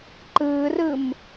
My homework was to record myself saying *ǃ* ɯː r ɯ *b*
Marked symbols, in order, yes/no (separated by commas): yes, no